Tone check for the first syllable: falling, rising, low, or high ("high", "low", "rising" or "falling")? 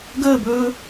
falling